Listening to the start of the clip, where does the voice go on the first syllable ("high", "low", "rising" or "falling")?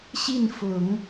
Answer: falling